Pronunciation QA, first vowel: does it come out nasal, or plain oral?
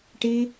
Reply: oral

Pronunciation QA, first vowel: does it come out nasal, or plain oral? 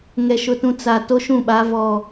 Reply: oral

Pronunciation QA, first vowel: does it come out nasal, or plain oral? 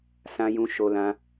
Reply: nasal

